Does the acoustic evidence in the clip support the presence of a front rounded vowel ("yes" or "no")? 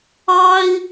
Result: no